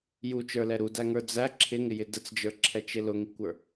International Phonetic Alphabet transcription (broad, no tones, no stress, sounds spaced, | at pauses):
j u t͡ʃ ə˞ l ɛ ɾ u d æ ŋ ə˞ d͡z æ ǁʰ ɪ ŋ ɪ j ɪ d ə t͡s d͡ʒ ə˞ ǁʰ ɛ t͡ʃ ɪ l ʊ ŋ i kʷ ə˞